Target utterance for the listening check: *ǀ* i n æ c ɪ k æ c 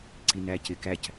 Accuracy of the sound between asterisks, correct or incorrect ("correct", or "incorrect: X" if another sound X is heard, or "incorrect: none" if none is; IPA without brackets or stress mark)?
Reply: correct